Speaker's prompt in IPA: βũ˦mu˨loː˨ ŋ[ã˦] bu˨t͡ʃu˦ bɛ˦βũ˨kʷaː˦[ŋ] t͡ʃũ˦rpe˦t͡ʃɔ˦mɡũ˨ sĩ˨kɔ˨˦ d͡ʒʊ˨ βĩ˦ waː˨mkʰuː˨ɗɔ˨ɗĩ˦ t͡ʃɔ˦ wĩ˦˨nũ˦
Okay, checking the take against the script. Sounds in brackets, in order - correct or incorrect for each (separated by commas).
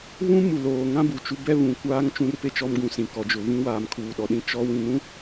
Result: correct, correct